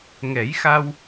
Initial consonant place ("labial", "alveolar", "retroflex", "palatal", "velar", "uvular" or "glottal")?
velar